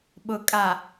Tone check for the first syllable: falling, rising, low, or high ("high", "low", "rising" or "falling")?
low